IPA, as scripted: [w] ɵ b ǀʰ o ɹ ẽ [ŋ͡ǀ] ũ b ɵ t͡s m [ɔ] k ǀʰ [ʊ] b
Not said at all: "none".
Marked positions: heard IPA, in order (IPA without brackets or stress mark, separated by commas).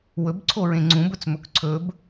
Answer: w, ŋ͡ǀ, ɵ, ɵ